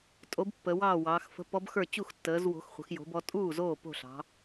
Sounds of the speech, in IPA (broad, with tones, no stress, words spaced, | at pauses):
tʼo˨˦b pːə˨˦wɑː˥˨wɑː˨˦x fə̤˨˦pɔ˨˦b xə˞˥˨ t͡ɕu˥˨xtːəː˨˦zwo̤˨˦xχʷə̤˨˦x jo̤˨˦bɔ˨˦ tʼuː˥˨zoː˥˨ po̤˥˨ɬɑ̤˨˦